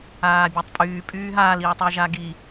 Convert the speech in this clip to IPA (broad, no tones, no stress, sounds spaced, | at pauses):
aː bʲ a tˤ pʼ yː pʼ yː ɦ aː l i ɹ tˤ ɛ ʒ a ɡ i